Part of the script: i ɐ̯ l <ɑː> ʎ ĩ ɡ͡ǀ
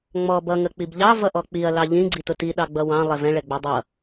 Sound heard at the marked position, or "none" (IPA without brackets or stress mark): ɑ